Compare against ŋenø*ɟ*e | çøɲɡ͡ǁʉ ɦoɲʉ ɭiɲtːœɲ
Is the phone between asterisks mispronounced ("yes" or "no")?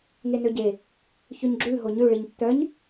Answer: no